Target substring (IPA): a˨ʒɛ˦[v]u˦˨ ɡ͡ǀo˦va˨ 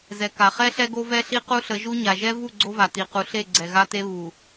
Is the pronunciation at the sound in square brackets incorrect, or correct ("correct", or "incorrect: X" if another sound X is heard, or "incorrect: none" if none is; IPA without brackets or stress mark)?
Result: correct